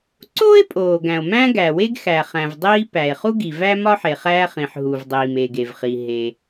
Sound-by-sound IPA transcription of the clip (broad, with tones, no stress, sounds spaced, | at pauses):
ǀ oː˥ e̯ pʼ oː˩ ɡ æ̃˩ o̯ m æ̃˥ ɡ æ˩ w e˥ ɡ x æ˩ χ æ̃˩ v dˤ iː˥ p æ˩ e̯ χ u˥ ɡ i˩ v æ˥ m ɒ˥ ħ e˩ χ æː˥ χ ĩ˩ ħ ɦ u˩ v dˤ iː˩ m e˩ ɡ e˩ v χ i˩ ɦ e˩